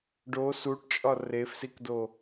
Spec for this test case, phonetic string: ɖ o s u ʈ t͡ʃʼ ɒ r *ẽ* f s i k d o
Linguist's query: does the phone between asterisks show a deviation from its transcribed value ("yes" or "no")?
yes